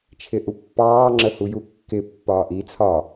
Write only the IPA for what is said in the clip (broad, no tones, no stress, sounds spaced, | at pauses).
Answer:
t͡ʃʰ ɪ ʔ u pː ɑː ŋ͡ǁ ə h u j u kː ɪ pː ɒː ʔ i t͡sʰ ɒ